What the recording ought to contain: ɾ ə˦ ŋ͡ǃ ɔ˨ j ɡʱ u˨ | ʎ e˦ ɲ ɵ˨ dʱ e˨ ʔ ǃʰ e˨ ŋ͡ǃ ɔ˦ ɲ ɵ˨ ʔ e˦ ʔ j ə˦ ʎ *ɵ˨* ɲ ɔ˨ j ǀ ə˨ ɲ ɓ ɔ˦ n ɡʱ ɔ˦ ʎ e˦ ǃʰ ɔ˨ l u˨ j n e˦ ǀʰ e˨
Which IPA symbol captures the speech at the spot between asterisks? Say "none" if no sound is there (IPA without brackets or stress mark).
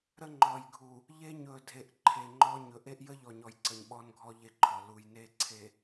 ɔ˨